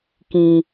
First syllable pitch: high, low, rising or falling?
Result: low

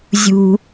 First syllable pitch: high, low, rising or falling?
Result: high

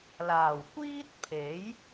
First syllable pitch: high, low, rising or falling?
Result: low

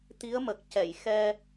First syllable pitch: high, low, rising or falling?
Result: rising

